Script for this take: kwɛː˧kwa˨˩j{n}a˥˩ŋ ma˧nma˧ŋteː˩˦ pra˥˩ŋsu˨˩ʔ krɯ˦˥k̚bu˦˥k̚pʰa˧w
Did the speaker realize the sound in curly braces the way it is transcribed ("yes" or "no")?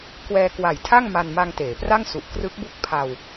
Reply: no